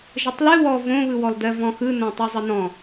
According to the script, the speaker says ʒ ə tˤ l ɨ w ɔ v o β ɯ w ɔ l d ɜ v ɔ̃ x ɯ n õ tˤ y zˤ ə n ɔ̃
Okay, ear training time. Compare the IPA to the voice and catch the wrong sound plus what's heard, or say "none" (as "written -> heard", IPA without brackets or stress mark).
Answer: o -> õ